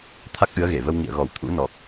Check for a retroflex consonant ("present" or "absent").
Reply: absent